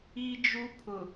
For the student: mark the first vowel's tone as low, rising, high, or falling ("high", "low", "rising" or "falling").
high